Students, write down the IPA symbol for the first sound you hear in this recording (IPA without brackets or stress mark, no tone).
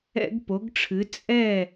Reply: ɛ̰